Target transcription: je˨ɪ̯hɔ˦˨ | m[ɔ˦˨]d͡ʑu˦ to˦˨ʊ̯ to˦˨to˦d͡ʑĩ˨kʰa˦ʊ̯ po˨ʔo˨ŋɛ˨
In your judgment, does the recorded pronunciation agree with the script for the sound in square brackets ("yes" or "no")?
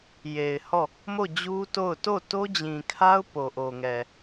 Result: no